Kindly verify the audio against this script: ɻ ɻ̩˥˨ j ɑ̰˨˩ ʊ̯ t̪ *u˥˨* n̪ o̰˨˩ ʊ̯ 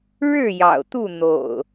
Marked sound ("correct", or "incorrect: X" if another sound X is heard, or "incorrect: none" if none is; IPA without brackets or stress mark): correct